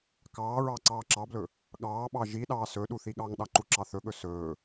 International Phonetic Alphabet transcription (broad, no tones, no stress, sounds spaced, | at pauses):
k ɑː ɹ ɑ ǀ ɑː ǁ ɑ b l ɵ | ɠ ɑː ɓ ɑ ʒ i ɗ ɑː s ɵ ɗ u θ i ɠ ɑ ŋ ɗ ɑ ǃ u ǁ ɑ θ ɵ ɠ ɵ s ɵː